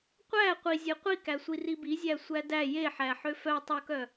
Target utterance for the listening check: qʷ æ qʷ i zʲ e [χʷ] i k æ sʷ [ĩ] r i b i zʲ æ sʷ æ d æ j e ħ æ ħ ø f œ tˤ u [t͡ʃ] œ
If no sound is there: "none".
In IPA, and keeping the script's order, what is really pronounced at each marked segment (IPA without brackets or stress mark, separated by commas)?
qʷ, i, k